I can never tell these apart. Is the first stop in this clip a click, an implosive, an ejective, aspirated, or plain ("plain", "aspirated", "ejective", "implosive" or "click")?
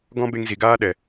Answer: plain